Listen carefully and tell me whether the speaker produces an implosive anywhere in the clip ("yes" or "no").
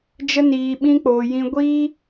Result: yes